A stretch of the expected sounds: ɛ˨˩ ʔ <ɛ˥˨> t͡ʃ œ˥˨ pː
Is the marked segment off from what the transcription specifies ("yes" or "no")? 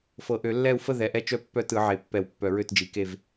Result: no